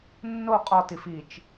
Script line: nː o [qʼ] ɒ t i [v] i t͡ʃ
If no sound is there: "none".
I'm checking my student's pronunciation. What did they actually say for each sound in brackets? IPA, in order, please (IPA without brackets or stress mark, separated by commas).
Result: qʼ, f